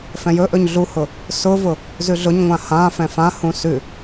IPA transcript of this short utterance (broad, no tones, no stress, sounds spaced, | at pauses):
f ɛ̃ j ɵ ʔ ɵ ɲ ɮ u h ʊ | s ʊ v ʊ | z ʉ ɮ ʊ ɲ ŋʷ ã h ã f ɛ̃ f ã h ũ s ʉ